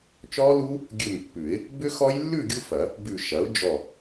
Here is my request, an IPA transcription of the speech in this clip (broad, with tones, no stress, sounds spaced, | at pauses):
t͡ʃ ɔ˦˥ l u˦˥ | ɡʲ ʉ˧˩ m pː ʉ˨˩˦ ɪ̯ | b ʏ˦˥ x ɔ˦˥ j lː ʉ˥˨ ɡʲ u˥˨ f ɐ˨˩˦ | b ʉ˧˩ ʃ ɐ˩˥ ʊ̯ d͡ʒ ɔ˧˩